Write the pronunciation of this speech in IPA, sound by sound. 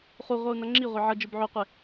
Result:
χ u ʁʷ ʌ u̯ n ʌ ŋ͡ǁ i ʁʷ e ʕ ʌ d͡ʒ ɯ b ʕ o qʷ e

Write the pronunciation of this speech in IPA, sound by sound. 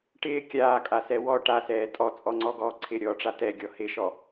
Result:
ʈ ɪː kʲ aː kʼ a s ɛ w ɔ ʈ a s ɛː tʼ ɔ t͡sʼ ɔ ŋ͡ǀ ɔ ɡ ɔː ǀʰ ɪ ɾʲ ɔː ʈ͡ʂ a t ɛ ɡʲ ɔ h ɪ ʃ ɔ

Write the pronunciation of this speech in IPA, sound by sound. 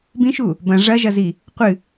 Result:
b ĩ ʃ u | b ɐ̃ ʐ ɐ ʒ ɐ z i | qʷ ɨ

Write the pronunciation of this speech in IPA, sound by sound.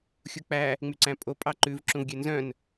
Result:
xʲ u k͡p æ | ŋ͡m y ǀ æ̃ pʼ o pʼ ɑ ǃ ʉ v ǁ ũ v ɡʲ ø n z œ̃ n

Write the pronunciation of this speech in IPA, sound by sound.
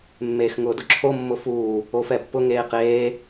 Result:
mː eː x ŋ ʊː d ʊ ǁʰ o mː ʊ f uː | o f ɛ pː ʊ ŋ eː q eː

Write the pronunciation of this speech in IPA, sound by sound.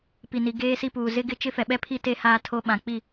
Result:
p i˨ n i˨ ɡ eː˦ s i˦ p uː˨ z ɪ˦ ɡ ɪ˦ t͡ʃ ɪ˦ f ɛ˨ ɓ ɛ˦ pʰ i˦ t e˦ h aː˦ tʰ o˦ ɓ ã˨ k͡p i˦˨

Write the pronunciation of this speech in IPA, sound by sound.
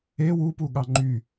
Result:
e w u p u ɠ ɑ ŋ͡ǃ y

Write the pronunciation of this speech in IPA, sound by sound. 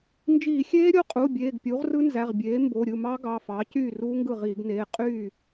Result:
n d͡ʒ iː˧˩˧ xʲ eː˦˥ ɾʲ o˥˩ qʼ u˩˧˩ bʲ eː˩˧˩ ɡ pʲ u˩˥ ʁ r ɯ˦˥ n z æ˩˧˩ ʁ bʲ eː˩˥ m b o˩˧˩ ɾʲ ɯ˥˩ m ɑ˦˥ ɡ ɑ˩˧˩ f ɑ˩˥ c yː˥˩ r uː˦˥ ŋ ɡ ɯ˥˩ ʁ iː˧˩˧ ɡ n eː˩˧˩ qʼ yː˥˩

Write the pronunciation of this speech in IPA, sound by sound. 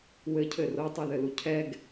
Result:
w ɘ cʰ ɘ r o tˤ u ð ɘ l u cʰ ɛ ɡ

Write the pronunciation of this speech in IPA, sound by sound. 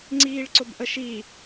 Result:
ŋ͡ǀ iː ɭ ǀ ʊ b ʔ ə ʃ i

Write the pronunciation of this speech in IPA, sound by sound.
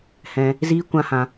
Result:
h ɛ̃˧ | z iː˦ kʷ ã˦ h ã˧

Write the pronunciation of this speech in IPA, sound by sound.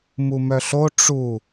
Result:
m u m œ ɬ o ʈ͡ʂ u

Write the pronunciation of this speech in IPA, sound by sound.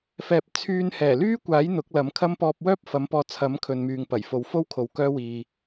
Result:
f ɛː˧ p̚ t͡sʰ yː˧ n h ɛː˨˩ l yː˥ kʷ aː˨˥ j n̪ ʊ˨˥ k̚ l ɐ˨˥ m kʰ ɐ˥ m p ɔː˧ p̚ w œː˥ p̚ f ɐ˨˥ m p ɔː˧ t͡sʰ ɐ˨˥ m kʰ ɵ˨ n m yː˨ ŋ p ɐ˨˩ j f o˨ w f o˥ w kʰ o˧ w k œː˥ w iː˧

